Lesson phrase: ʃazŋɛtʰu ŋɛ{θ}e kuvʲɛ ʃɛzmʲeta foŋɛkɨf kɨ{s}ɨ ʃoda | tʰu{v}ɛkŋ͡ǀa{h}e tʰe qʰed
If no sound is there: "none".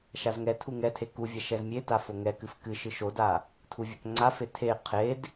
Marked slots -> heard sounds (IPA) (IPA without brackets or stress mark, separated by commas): tʰ, ʃ, vʲ, f